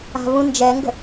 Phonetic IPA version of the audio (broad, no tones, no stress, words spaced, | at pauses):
a̤vũnd͡ʒɛŋɡə̤